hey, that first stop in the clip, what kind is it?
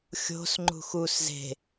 click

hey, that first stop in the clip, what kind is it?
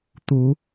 plain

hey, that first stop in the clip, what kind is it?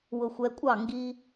ejective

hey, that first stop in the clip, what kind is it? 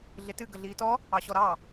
plain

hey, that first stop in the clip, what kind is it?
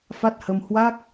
plain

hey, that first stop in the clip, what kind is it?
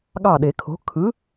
implosive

